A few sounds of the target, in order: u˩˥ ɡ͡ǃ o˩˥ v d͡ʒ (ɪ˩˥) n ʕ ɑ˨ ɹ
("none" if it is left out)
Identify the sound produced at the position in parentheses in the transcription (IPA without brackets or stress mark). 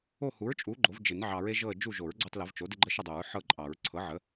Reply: ɪ˨˩˦